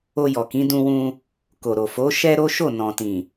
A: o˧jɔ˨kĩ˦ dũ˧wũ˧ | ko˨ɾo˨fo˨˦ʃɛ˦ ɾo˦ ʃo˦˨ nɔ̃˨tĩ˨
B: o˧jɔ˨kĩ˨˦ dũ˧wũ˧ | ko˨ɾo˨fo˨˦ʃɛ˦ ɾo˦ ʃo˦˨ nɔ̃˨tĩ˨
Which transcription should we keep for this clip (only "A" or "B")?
B